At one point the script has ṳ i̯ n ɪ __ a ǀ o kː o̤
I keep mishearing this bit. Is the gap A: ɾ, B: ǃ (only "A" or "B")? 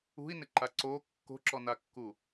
B